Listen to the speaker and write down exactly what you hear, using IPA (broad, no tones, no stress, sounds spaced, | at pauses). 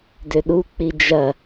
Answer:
d ø ɗ u k͡p i d͡ʒ ɐ